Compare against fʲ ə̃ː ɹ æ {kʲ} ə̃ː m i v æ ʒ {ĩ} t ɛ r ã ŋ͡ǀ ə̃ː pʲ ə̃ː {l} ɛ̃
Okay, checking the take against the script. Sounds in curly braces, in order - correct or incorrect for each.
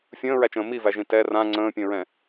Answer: incorrect, correct, incorrect

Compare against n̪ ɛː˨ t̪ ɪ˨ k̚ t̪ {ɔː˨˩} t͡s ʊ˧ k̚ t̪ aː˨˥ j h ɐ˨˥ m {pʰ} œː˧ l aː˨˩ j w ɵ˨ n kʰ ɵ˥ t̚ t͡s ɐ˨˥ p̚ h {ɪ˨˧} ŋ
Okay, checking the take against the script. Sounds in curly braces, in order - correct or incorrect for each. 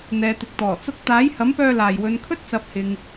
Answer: correct, incorrect, incorrect

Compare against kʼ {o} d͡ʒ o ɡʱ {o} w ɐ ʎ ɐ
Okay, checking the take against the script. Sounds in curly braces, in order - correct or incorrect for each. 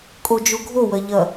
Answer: correct, correct

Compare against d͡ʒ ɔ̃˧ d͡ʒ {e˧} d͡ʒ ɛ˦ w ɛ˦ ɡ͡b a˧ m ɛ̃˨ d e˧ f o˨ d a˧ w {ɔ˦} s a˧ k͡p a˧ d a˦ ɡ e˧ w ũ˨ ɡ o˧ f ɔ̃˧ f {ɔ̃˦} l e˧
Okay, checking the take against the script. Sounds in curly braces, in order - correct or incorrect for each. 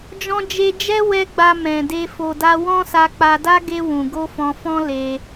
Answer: correct, incorrect, correct

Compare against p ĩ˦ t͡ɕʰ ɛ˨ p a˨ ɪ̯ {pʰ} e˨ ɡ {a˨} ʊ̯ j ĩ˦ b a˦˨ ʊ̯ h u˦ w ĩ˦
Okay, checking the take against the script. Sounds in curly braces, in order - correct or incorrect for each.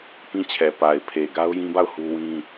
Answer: correct, incorrect

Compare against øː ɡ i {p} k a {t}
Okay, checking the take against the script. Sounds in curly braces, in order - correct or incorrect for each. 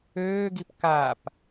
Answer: correct, incorrect

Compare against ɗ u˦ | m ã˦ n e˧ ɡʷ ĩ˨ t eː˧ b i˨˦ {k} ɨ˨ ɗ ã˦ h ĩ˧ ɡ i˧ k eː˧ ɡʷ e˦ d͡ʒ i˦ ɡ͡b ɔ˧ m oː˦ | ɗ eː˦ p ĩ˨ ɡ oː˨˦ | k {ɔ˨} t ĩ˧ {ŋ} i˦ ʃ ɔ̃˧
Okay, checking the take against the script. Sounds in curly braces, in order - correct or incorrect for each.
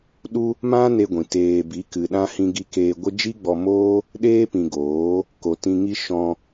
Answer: correct, incorrect, correct

